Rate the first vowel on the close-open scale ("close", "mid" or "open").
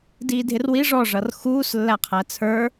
close